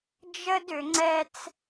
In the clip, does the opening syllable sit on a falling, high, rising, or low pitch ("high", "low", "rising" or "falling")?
high